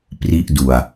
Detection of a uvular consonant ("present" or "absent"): absent